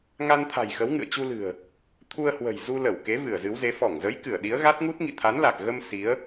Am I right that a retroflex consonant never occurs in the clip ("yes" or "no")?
yes